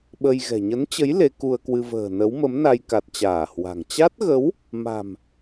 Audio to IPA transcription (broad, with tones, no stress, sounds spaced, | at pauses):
ɓ ə˧ j ɣ ɛ̤˨˩ ɲ ə˨˦ n t͡ɕ ə˨˦ j l e˨˦ k u˧ ə̯ k w ɨ˧ v ə̤ː˨˩ n ə˨˦ w m ə˨˦ m n a˧ j k a˨˩ t̚ t͡ɕ aː˧˩ h w a̤˨˩ ŋ t͡ɕ a˦˥ t̚ ɣ ə˨˦ w | m a̤˨˩ m